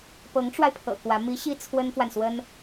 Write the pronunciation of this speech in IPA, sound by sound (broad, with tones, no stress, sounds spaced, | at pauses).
p ɤ˧˥ ŋ ʈ͡ʂ w a˧ ɪ̯ pʰ ɤ̰˨˩ k w ä˧˥ m i˧˥ ɕ i˥ t͡sʰ w ə˥ n f w a˨ n s w ə˥ n